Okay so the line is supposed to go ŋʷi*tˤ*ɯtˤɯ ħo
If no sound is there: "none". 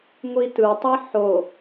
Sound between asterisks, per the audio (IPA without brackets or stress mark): t